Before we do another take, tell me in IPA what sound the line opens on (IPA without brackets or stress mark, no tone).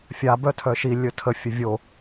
fʲ